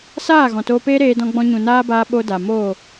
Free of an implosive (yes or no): no